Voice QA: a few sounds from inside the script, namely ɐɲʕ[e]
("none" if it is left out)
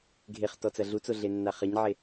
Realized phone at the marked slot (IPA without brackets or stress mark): e